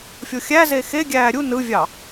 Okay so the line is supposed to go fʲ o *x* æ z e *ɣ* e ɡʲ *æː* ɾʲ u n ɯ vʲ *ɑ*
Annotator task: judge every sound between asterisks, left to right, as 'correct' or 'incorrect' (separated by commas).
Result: incorrect, incorrect, correct, correct